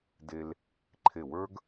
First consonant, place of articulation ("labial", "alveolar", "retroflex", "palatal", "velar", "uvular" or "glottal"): alveolar